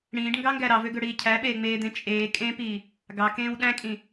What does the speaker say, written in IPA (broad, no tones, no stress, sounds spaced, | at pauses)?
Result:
ɽ ĩː ɖ ŋ ɡ ɑ ŋ ɡ æ ɾ ɑ v ø ɡ ø ɽ iː cʰ æ ɓ eː ŋ͡m eː d̪ ẽ t͡ʃʼ eː kʼ ẽ p iː | ɡ ɑ k ẽː w ɗ æ̃ kʼ ĩ